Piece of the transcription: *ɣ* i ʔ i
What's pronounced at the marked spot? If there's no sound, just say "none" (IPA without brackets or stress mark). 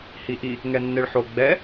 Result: h